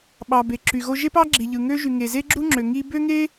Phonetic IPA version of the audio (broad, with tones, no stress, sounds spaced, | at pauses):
ɓ ɑ˩ b e˩ ǁ y˩ ɣ o˥ ʒ e˥ p ɑ˥ ɡ͡ǁ i˩ ʎ ɯ˩ ŋ ø˥ ʒ y˩ ŋ e˩ z e˥ ɡ͡ǁ u˥ ŋ͡ǁ ø˩ ŋ i˥ b ø˥ ŋ e˥